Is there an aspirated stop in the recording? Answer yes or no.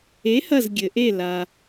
no